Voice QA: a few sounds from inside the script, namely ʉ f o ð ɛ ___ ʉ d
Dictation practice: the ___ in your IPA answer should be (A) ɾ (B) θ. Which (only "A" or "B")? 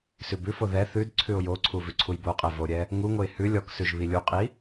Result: B